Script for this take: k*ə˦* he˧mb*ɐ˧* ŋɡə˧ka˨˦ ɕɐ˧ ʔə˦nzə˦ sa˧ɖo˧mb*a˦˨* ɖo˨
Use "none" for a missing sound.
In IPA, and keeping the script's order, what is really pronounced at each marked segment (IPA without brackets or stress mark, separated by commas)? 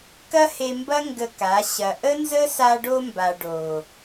ɐ˦, ɐ˦, a˨